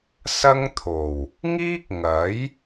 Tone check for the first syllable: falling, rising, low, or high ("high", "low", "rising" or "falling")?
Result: high